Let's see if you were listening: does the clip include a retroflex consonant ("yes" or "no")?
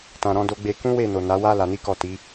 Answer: no